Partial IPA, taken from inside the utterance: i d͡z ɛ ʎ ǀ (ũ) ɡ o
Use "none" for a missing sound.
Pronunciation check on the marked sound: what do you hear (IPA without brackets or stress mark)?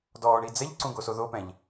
ũ